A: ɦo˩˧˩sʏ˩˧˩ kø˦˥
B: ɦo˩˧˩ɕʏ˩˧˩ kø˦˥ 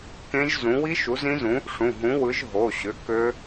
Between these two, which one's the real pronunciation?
B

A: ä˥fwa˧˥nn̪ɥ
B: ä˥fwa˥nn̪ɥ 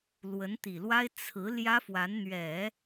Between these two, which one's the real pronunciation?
A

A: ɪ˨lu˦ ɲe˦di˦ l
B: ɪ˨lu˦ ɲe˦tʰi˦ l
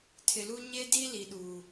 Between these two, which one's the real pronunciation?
A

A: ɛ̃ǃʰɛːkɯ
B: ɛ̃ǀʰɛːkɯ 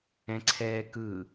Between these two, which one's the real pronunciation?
B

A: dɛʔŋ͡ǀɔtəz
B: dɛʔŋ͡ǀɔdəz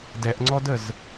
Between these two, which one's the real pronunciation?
B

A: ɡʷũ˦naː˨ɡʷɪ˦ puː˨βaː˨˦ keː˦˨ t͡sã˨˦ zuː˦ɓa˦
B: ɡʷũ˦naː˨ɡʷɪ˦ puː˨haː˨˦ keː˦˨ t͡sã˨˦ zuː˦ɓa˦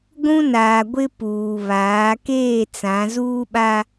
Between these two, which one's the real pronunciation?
A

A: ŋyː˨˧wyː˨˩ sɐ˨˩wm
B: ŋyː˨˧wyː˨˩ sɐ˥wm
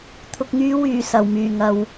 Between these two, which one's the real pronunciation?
A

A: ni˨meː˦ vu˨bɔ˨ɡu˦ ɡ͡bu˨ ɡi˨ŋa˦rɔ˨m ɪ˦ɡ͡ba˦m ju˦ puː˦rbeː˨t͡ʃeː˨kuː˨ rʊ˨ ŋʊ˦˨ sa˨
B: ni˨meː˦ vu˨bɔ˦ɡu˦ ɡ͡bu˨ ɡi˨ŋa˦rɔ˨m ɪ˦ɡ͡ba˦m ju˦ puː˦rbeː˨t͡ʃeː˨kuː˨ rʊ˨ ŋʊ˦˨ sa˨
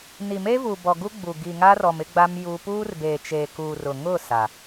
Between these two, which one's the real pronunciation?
A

